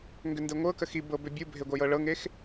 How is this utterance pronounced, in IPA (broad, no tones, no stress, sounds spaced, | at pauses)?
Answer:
ŋ ɡ ʏ n d e ŋʷ ɤ k ə x i b ɤ b ʏ bʲ u bʱ e ɡʷ ʌ j ɤ ɭ ɤ ŋ e x